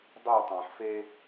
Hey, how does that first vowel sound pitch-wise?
falling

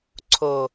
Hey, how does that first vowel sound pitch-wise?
low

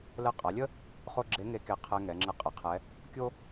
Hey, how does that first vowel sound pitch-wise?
rising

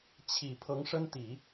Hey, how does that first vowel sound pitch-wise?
low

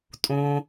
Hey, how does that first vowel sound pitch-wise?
low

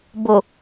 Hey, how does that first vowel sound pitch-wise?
low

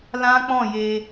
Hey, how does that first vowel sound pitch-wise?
high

